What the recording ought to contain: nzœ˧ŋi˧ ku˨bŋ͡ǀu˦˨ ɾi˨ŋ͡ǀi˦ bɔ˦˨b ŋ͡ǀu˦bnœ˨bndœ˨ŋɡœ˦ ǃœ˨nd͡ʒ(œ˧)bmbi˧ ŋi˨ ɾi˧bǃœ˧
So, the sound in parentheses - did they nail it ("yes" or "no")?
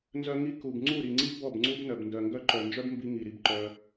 no